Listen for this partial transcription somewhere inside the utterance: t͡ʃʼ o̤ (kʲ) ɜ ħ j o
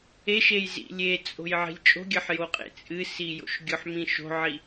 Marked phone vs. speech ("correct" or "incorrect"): incorrect